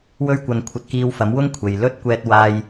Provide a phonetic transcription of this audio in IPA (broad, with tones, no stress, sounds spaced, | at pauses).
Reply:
w ɵ˥ ɥ kʷ ɐ˧ n kʷʰ ɐ˧ t̚ k iː˧ w f ɐ˨˥ m w ʊ˥ ŋ kʷʰ e˨ j l ɵ˥ t̚ kʷ ɛː˧ t̚ w aː˧ j